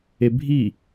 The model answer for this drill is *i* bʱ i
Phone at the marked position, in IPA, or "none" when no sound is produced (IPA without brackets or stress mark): e